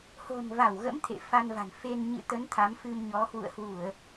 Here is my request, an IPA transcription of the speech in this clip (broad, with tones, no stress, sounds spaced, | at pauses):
h o̤˨˩ n v a˧˩ w ɣ ə̰˧˥ m t̪ʰ ḛ˧˨ f a˧ n v a̤˨˩ n f e˧ n ɲ ɨ̰˧˨ t̪ ə˨˦ n t̪ʰ a˨˦ m f ɨ˧ m ɲ ɔ˨˦ h w ṵ˧˨ ə̯ h w u˧˩˨ ə̯